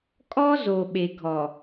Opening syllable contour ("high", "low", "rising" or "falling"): high